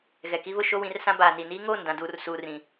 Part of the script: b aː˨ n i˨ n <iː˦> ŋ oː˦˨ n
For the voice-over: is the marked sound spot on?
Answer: yes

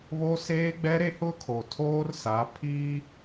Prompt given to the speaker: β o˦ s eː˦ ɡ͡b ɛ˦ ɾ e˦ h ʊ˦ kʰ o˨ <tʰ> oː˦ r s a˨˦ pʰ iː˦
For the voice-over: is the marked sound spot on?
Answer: yes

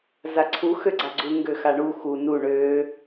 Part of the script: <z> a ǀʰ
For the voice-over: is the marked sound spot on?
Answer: yes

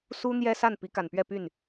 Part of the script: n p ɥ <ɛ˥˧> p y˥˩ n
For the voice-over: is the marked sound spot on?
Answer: yes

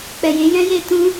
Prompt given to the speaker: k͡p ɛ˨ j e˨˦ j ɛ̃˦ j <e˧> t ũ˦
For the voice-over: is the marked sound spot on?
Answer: yes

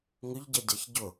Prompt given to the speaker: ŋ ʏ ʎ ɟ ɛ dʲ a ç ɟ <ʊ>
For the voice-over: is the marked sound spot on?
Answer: yes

